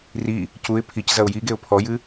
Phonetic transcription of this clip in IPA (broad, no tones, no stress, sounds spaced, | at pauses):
r i | c u ɪ̯ pʰ i c z ɐ ʊ̯ j i ɡ e ʊ̯ pʰ ɔ j ɨ